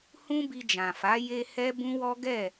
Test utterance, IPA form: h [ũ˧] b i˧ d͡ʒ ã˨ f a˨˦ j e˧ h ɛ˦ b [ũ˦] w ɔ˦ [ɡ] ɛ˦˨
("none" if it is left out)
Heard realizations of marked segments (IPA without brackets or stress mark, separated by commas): ũ˦, ũ˦, ɡ